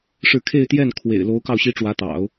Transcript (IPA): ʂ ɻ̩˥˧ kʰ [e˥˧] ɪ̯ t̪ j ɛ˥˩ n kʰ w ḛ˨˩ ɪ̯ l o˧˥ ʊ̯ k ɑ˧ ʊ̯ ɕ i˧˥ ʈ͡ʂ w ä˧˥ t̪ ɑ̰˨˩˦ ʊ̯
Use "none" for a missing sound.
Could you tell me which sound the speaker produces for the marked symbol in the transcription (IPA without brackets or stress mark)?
e˥˧